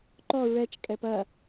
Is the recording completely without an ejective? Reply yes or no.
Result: no